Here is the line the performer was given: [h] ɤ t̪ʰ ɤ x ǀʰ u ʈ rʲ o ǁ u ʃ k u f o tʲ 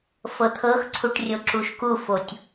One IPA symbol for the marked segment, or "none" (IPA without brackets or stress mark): f